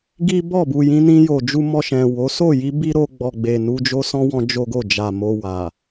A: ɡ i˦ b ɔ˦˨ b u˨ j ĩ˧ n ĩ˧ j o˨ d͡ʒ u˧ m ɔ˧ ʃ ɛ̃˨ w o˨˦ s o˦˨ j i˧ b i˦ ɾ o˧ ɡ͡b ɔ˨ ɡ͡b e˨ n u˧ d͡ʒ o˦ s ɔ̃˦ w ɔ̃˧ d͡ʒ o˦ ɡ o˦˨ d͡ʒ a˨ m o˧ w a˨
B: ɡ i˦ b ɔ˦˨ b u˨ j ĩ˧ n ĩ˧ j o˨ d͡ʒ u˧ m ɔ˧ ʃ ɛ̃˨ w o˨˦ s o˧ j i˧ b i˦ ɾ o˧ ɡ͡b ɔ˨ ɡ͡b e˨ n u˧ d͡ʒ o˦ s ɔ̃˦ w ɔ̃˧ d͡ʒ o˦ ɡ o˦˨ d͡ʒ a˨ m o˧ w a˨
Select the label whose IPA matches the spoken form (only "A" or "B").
A